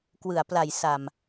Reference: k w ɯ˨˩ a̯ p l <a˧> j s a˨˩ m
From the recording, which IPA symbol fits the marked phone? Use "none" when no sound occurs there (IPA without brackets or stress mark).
a˨˩